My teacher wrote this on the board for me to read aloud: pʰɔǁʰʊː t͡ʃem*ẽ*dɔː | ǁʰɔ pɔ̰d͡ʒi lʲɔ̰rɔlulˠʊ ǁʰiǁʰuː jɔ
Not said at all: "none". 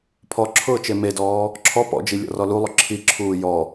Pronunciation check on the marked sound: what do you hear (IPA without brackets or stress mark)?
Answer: e